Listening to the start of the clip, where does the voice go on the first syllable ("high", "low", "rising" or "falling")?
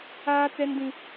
high